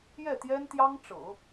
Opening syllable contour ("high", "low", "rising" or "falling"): falling